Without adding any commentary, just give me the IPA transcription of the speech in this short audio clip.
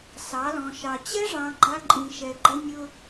sɑ˨˦lɔ̃˨ʃɑ˨ t͡ɕɛ˦ʐɑ̃˨ ɡ͡ǃa˦ǃʼĩ˨ ʃɛ˨ɡ͡ǃə˦ nʲʊ˦

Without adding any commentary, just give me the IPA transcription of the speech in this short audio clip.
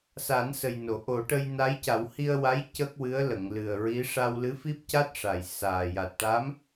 sa˨˩˦nsə˨˩jno˨˩˨ ʔo˨˩˦ʈə˧j na˧˥jca˨˩˦w hi˧ə̯wa˧˥j cə˦˥k̚wɨ˧˥ə̯lə˨˩˨ŋ lɨ˨˩ə̯ ɹi˧˥ ʂa˧wlɨ˧˥fi˦˥p̚ca˦˥t̚ ʂa˨˩jsaː˨˩ ja˨˩t̚ʈa˧˥m

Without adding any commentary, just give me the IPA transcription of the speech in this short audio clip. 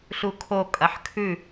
ɬukʰo kʼɐħkʰʉ

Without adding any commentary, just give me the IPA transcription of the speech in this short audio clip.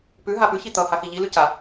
pʉ ɦapʉ çit̪ʌ haxiʎi lʉca

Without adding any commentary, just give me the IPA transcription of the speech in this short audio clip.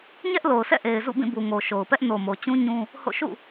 ɲɛ˦ʔlo˨ʊ̯sʰɛ̰˦˨ ʔe˨ɪ̯zṵ˦˨bĩ˦˨ bu˨ŋo˨ʃo˨ʊ̯pɛ˦ʔ no˨mo˨t͡ɕũ˦ ɲũ˦ | ho̰˦˨ ʃṵ˦˨

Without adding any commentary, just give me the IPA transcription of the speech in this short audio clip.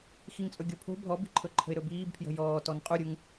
xiŋt͡sʼɵɡʲopʰo̤ bʱɔbi̤ǃʰɵ ǃʰə̤ɪ̯ɾɵbiːbpʰjə̤ jɔːtɔn qʼuɾʲuŋ

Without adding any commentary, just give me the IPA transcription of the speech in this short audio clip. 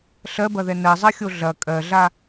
ɬɜbɐðɛ nɜzˤɜxʲo ɮɐ kʼɜɮa

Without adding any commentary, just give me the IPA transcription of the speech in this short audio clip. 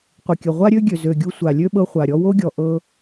qʷɘ˨kʲɘ˨ ʁʷa˦ɾʲø˦ ɡʲø˨zø˨ ɡʲu˧sʷa˨lʲø˦ ɓɤ˧χʷa˨ɾʲɔ˧ wo˦ɡʲɔ˨ ʔɤ˧

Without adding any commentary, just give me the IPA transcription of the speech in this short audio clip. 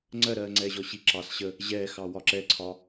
ŋ͡ǀɜɾɜːŋ͡ǀɛː ʑɔɕiǁɑs ɕə | ʑɛːxɑ wɒǁɛǀʰɒ

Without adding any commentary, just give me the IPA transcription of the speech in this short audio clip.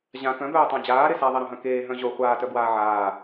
ʑã kœ̃bœːtˤã d͡ʑaːɾe saðˤeɾœ̃ɦœ̃ keːɦœ̃ ʑo χʷaːtœbwaː ʕaː

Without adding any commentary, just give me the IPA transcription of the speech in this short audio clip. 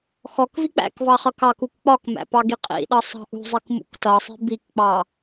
xɔkvi k͡pæ̰kvɑ χʌkɑkuk k͡pɒkmæ̰ pɑɡiqʼḭɗʌ sˤɑ̤ʔṳzˤik mṵktʌsˤi̤ bikk͡pɑ

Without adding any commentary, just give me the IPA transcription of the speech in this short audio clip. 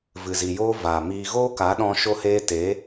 vɨ˨zi˨joː˦ vaː˨miː˧ ɣoː˦ka˨˦ɗɔ̃˧ ʃo˦heː˦ teː˨˦

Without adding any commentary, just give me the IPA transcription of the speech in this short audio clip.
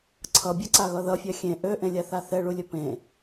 ǀʰʌbʲʌǀaɣʌ ðʌfʲa xʲẽ ʔøʔẽlʲaθa θɛɭulʲɵ pẽ

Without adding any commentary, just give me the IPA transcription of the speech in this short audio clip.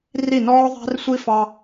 ri˦˨nɔː˦ðˤæ̤˦rsʷi˦ fɑ˦

